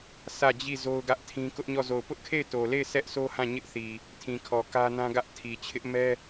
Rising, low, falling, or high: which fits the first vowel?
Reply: falling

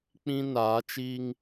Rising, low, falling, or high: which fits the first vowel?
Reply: high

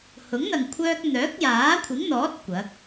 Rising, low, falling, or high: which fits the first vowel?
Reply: rising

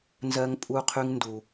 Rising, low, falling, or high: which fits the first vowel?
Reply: high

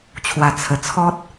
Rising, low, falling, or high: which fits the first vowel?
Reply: low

